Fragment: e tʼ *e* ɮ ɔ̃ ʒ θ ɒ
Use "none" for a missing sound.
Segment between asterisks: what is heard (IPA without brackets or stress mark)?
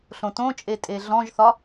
e